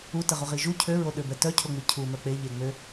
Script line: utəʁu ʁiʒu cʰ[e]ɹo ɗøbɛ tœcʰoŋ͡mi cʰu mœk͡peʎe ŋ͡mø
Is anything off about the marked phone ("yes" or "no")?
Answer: yes